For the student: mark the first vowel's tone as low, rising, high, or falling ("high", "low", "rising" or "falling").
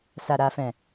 low